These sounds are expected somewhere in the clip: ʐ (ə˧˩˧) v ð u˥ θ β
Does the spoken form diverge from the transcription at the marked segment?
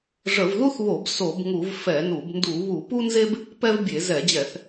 no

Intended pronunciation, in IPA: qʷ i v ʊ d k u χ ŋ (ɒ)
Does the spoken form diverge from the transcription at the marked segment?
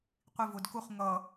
yes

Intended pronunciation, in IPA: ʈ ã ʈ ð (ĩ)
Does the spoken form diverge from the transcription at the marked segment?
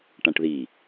yes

